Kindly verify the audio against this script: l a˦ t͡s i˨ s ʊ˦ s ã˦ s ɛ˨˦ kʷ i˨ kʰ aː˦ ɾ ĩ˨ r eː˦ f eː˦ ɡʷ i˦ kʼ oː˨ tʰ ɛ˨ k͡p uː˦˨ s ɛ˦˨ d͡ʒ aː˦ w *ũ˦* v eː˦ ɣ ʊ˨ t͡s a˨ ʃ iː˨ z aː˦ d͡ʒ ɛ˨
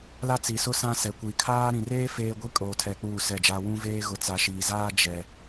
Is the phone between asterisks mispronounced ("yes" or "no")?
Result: no